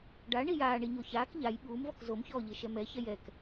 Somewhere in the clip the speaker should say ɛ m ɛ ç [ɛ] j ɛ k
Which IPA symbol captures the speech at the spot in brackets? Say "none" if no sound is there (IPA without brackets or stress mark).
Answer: ɛ